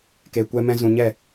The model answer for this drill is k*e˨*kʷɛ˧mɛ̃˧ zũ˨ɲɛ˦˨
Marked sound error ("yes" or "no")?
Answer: no